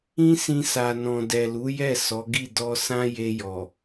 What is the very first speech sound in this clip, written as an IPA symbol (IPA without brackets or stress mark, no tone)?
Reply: ĩ